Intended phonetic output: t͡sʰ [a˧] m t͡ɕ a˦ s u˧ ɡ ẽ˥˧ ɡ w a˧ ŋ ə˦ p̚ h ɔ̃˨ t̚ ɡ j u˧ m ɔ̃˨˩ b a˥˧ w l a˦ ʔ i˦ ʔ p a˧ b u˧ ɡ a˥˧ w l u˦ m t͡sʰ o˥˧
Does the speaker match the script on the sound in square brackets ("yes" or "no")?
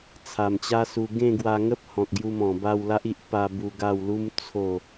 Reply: no